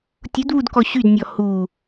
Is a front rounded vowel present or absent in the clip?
present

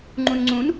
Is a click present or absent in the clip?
present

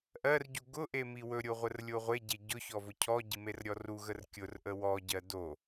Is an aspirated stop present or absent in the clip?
present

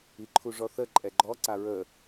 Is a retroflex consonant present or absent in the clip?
present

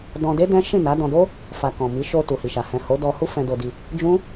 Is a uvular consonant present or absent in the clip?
absent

